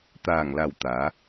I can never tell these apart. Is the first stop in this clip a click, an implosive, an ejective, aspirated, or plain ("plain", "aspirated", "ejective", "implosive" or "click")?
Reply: plain